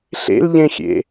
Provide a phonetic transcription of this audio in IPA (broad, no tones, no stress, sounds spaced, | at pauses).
ɬ ḛ l ʎ ẽ xʲ ḛ